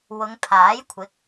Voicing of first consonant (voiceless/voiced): voiced